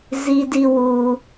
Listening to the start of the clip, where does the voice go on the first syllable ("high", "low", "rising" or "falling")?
low